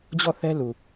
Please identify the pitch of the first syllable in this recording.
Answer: falling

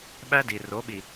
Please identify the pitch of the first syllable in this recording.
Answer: high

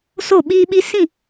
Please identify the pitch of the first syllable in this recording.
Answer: falling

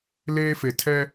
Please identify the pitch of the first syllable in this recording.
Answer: high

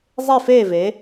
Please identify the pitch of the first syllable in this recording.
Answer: falling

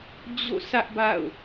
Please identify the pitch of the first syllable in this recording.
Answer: falling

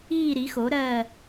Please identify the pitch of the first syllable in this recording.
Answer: falling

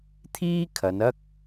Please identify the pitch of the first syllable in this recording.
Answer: high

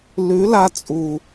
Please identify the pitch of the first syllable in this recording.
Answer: rising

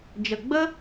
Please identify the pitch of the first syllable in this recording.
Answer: low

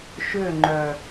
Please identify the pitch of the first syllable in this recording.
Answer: falling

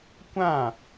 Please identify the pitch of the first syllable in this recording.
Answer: falling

